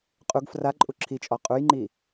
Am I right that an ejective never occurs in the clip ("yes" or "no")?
no